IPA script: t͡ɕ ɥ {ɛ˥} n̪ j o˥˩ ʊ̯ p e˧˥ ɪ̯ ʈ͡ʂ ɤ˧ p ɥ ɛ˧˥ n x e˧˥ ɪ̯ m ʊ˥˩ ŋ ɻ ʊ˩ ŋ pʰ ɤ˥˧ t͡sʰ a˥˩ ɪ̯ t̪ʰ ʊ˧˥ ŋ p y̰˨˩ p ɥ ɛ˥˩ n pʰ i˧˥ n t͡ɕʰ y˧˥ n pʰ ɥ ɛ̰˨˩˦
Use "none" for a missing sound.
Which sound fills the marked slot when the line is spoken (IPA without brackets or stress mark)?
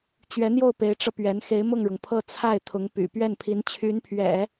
ɛ˧˥